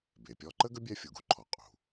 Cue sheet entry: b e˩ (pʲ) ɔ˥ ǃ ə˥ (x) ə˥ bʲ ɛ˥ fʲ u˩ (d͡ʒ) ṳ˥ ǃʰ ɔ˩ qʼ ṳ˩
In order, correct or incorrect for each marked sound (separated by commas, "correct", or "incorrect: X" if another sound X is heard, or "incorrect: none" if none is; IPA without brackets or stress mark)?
correct, incorrect: ɡ, incorrect: ɡ